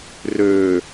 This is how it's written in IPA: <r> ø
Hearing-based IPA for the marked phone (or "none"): r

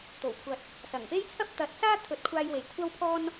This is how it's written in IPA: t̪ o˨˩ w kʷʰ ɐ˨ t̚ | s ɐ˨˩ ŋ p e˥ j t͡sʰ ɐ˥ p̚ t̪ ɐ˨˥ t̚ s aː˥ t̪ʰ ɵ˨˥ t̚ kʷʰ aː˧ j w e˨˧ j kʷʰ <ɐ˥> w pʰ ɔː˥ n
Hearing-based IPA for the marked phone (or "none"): ɐ˥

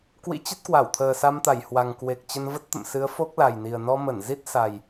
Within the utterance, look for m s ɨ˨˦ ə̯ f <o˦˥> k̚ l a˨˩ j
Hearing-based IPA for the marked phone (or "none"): o˦˥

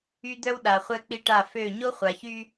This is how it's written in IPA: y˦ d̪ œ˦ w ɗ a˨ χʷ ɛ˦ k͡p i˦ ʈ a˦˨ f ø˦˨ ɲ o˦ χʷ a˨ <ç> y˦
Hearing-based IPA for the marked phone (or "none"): ç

